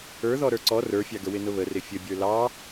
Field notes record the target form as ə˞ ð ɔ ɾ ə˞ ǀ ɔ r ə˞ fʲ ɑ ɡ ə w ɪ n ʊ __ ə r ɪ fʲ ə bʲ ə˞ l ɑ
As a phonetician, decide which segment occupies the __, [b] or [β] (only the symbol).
β